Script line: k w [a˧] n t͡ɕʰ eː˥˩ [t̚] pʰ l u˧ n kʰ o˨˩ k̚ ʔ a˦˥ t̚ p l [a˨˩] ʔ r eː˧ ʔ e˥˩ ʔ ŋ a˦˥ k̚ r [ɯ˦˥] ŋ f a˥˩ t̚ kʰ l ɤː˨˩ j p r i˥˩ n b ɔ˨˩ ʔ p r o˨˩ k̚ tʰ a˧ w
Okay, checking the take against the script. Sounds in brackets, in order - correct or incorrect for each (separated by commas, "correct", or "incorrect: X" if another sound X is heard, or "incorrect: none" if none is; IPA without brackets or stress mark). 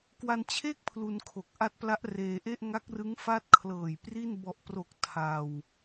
correct, incorrect: k̚, incorrect: a˦˥, correct